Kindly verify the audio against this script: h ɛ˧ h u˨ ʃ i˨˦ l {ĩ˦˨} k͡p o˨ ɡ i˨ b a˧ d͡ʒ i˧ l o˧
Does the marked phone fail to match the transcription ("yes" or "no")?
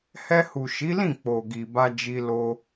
no